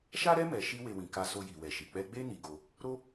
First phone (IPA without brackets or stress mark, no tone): ʃ